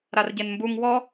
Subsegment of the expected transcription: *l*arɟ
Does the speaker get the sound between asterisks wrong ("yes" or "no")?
yes